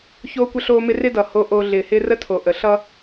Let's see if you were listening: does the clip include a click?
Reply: no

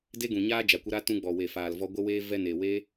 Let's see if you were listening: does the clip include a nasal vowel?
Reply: yes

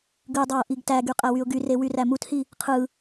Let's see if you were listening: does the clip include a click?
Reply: no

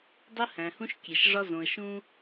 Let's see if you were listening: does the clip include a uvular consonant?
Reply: no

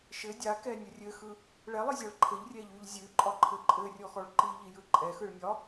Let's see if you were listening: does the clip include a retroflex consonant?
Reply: yes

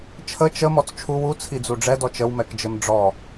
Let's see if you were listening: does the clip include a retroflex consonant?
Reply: yes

